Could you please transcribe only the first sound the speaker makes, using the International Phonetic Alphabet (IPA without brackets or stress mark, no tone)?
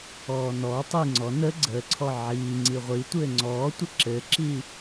ɔː